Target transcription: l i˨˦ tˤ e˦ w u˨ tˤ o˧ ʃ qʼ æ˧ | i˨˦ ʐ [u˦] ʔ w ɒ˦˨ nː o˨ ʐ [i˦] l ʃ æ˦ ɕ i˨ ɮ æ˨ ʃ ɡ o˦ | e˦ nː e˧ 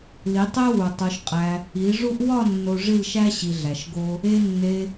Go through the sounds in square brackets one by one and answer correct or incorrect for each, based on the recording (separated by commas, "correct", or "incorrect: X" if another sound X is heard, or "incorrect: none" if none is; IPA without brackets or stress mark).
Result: correct, incorrect: i˦˨